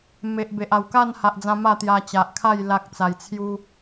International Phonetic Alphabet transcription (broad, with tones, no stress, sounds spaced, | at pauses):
m e˨ ʔ b e˨ ʔ a˨˩ w k a˥˧ n h a˨ ʔ d͡z ã˧ m a˥˧ t̪ j a˧ t͡ɕ a˨ ʔ kʰ a˥˧ j l a˦ k̚ t͡s a˧ j t͡sʰ j u˦